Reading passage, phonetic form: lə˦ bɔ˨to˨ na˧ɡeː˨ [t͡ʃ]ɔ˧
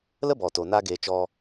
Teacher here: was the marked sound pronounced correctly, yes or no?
yes